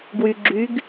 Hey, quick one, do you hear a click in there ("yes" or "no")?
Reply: yes